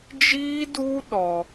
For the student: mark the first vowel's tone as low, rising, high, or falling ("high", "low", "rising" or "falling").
high